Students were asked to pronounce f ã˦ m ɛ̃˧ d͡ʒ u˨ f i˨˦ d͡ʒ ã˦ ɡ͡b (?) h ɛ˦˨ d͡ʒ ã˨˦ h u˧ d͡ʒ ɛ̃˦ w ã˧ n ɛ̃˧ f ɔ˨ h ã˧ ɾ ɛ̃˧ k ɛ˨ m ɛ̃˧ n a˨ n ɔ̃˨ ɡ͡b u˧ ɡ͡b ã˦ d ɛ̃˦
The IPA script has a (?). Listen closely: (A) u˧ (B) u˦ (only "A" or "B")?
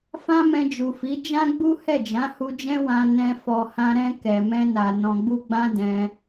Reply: B